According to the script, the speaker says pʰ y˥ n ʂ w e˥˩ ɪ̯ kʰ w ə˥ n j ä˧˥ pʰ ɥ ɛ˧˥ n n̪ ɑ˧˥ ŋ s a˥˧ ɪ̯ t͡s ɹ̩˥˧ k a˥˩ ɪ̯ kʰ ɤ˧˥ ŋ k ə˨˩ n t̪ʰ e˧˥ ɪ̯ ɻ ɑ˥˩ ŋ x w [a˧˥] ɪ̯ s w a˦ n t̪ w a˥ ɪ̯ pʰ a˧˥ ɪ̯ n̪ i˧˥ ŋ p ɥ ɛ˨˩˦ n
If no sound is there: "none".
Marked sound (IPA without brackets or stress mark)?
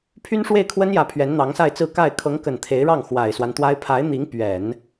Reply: a˨˩